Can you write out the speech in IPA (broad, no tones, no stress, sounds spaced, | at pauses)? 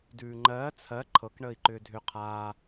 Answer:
d ʉː ŋ͡ǃ ɜː t͡sʰ ɜ ǃʰ ɤ k ɳ əː i̯ ǃ ʏː dʱ ʏ qʰ aː